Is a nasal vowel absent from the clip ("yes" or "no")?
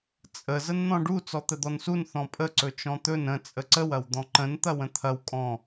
no